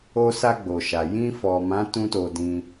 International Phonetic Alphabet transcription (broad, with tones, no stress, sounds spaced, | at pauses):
o˧ s a˧ ɡ͡b o˨ ʃ a˨ j ĩ˧ f ɔ˨ m ã˨˦ t ũ˦ t o˧ d ĩ˧